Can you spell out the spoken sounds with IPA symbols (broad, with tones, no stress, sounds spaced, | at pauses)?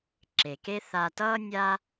ǁ e˨ k e˦ θ a˧ t ʌː˦ nʲ a˦